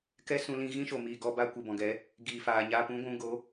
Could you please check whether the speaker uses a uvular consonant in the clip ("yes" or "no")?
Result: no